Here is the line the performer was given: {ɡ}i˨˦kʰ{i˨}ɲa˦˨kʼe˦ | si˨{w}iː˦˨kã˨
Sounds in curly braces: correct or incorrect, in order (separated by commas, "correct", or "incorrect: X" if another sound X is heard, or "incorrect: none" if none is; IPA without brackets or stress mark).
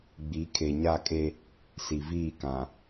incorrect: ɡ͡b, incorrect: e˨, incorrect: v